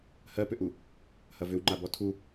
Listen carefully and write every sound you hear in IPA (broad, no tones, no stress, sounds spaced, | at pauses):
h ɜ p ʏ ʔ u | h ɐ v ʏ w ŋ͡ǃ a b ɔ tʰ u